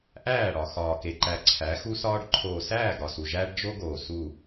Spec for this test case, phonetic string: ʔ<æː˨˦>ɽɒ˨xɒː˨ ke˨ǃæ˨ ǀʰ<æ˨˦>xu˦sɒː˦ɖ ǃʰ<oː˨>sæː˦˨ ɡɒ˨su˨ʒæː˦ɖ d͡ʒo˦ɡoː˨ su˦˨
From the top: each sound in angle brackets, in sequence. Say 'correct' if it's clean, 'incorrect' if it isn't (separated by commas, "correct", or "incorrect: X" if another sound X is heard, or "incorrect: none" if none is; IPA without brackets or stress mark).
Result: incorrect: æː˦˨, correct, correct